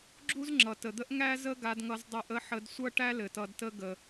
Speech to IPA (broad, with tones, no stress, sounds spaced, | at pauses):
ɡ͡ǁ u˥ z ŋ͡ǁ ʌ˩ t ə˩ d̪ ə˥ ʔ ŋ æ˥ z ə˥ ɡ a˧ d ŋ ʌ˧ z dˤ ɤ˧ ʔ ə˥ ħ ə˧ d sʷ ʌ˥ ʈ æ˥ l ɘ˩ t ʌ˧ d t ə˥ ɡ ə˩